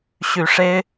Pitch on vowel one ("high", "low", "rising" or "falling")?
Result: low